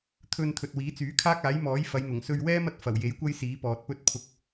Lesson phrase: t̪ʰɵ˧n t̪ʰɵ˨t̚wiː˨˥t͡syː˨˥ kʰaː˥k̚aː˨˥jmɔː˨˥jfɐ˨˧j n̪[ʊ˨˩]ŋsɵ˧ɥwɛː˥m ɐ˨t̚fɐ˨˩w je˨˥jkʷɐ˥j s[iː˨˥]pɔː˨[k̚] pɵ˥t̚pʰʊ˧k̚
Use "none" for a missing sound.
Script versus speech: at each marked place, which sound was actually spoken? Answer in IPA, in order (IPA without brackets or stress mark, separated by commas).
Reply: ʊ˨˩, iː˨˥, t̚